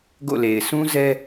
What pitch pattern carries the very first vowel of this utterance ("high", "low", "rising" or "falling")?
falling